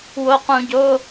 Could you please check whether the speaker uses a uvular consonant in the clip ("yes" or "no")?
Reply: yes